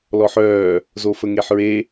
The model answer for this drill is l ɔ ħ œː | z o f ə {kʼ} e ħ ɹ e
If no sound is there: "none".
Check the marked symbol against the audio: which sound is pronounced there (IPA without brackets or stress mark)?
ŋ